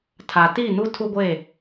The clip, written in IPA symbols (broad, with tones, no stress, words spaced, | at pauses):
tʰa˨ti˦˨nu˦ tʰu˦ɡʷe˦˨